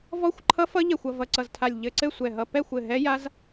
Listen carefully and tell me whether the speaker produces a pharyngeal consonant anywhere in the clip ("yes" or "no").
no